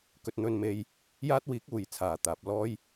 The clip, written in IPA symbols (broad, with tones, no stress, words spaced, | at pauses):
kɵ˧t̚n̪ɵ˧nme˧j | jaː˥t̚wiː˨˥k̚uː˨˩jt͡sʰaː˨˩ t̪aː˨p̚lɔː˥j